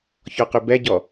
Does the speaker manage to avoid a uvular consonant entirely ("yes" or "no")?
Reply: no